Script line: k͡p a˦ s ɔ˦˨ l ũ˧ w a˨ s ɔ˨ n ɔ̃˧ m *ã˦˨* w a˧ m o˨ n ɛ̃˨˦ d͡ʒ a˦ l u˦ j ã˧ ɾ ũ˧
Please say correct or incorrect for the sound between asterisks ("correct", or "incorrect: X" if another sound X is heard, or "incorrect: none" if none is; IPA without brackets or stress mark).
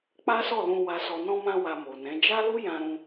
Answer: incorrect: ã˧